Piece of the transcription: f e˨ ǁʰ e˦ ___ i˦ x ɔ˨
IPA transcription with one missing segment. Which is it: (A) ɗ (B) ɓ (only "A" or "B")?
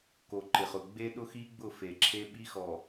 B